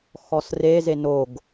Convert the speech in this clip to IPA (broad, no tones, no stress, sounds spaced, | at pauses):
x ɔ s r e z e n o ɡ